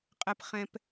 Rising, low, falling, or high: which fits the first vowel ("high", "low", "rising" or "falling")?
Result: low